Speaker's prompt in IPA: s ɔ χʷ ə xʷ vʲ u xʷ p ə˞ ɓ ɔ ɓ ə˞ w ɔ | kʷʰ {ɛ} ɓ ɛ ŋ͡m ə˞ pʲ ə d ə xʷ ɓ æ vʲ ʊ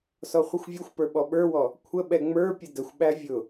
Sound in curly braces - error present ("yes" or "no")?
yes